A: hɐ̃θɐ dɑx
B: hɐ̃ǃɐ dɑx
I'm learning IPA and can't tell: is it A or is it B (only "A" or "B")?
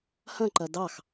B